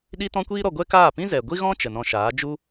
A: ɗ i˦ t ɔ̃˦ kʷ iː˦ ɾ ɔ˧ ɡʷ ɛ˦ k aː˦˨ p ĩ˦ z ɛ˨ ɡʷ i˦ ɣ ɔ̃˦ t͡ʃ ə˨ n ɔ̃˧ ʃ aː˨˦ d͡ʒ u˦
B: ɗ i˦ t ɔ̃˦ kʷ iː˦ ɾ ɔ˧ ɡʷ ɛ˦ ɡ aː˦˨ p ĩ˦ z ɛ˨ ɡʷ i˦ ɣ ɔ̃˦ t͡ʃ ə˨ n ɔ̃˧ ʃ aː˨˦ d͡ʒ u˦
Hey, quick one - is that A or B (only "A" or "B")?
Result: A